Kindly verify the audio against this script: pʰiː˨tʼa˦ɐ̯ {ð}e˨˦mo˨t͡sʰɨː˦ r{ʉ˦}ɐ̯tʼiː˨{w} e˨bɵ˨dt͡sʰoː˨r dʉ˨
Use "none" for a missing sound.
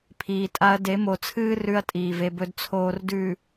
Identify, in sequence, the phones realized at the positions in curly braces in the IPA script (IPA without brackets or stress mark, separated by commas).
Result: d, ʉ˦, v